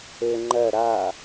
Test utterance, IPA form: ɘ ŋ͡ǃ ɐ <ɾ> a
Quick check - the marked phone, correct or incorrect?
correct